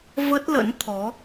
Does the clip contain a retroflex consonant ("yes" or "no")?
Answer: no